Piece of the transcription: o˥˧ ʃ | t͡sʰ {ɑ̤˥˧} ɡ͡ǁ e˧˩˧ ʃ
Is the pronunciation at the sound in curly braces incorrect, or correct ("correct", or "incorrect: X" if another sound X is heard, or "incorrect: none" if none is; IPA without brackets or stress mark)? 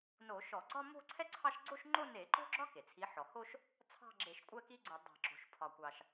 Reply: correct